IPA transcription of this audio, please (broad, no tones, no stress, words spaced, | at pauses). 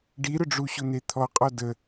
ɖiɾʊɖ͡ʐuɕʊ n̪et̪ʰɔqʼɔ də